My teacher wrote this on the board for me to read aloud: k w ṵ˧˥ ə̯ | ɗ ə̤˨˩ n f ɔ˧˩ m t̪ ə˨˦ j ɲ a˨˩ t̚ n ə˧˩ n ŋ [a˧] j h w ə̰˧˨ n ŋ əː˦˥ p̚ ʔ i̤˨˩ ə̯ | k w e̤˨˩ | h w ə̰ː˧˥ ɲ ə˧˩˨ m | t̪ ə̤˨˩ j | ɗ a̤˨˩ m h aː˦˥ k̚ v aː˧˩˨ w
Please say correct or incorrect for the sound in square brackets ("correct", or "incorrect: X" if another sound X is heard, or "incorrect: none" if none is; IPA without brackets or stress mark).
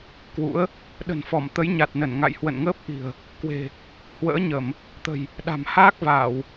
incorrect: a̰˧˨